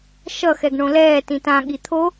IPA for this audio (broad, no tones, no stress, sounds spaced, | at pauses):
ʃ ʌ x ɛ ɡ ɳ õ l ɛː t ĩ t ã ɠ i t̪ʰ o